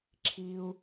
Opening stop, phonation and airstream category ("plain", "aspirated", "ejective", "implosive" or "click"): click